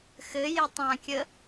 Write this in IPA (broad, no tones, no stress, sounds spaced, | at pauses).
x ɘ j e tˤ ã kʲ ə